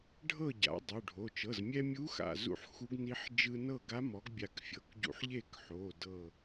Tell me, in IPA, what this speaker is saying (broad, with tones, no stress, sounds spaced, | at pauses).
ɖʱ ɤ˥˨ ɟ a̰˩˥ dˤ u˩˧˩ ɖʱ o˩˧˩ t͡ʃ ɤ˩˧˩ z mʲ ɛ˧ mʲ u˧˥ x a̰˧˩ z ṵ˧ ħ x u˧˥ ɡ n i˧˥ ħ d͡ʒ ɯ˧ n ɤ˥˨ ɡ a˧˥ m ɔ˩˥ ɡ bʲ a˧˩ k fʲ ɤ˩˧˩ k ɟ ṵ˧ ħ ʎ e˥˨ k ħ o˩˧˩ d ɤ˧˩